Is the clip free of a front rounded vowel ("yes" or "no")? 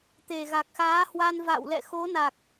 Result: yes